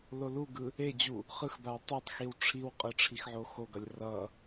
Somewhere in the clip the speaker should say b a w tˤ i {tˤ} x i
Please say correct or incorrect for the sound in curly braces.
correct